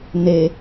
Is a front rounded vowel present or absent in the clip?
absent